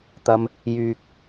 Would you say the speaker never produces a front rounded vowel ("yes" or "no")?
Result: no